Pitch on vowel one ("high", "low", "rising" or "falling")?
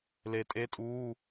low